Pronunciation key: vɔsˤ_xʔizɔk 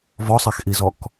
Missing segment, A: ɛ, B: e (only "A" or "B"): A